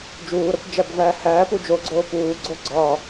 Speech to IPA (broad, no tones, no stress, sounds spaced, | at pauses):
d͡ʒ uː ɾ ɒ kʷ d͡ʒ æ b v æː h æː p u d͡ʒ o ɡ͡ǀ oː p uː ɡ͡ǀ o ɡ͡ǀ ɒ